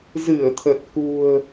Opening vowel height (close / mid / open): close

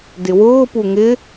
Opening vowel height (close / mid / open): close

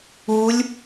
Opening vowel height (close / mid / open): close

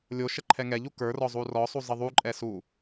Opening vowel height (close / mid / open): mid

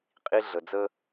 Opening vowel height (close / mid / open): close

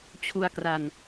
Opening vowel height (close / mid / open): close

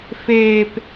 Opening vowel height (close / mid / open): mid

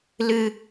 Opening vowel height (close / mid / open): close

